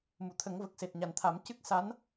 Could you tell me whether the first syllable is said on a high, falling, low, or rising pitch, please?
low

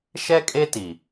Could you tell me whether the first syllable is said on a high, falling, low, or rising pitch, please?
high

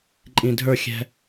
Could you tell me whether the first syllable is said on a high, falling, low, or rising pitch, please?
low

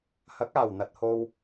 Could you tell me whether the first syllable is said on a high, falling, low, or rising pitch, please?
rising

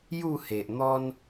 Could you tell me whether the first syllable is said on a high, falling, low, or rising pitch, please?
falling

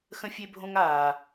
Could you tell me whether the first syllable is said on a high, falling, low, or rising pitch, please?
high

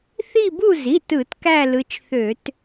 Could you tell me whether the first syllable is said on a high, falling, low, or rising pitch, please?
falling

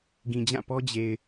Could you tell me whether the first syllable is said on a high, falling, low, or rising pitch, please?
low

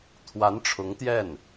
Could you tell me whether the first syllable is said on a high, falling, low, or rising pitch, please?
rising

